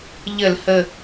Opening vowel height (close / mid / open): mid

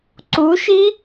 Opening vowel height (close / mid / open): close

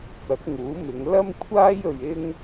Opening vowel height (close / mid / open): open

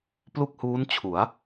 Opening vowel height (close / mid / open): close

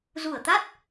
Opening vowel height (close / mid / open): close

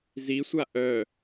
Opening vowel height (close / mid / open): close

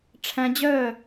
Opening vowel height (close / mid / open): open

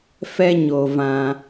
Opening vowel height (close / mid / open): mid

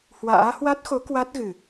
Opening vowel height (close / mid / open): open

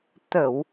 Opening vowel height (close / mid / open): mid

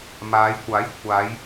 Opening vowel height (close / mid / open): open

